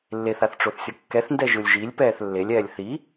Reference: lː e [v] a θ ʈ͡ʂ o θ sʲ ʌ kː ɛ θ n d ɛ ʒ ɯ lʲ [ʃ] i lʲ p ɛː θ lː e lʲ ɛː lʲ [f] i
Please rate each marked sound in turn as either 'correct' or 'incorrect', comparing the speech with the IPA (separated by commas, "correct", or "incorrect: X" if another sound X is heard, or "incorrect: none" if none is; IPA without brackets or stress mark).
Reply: incorrect: θ, incorrect: ʒ, incorrect: θ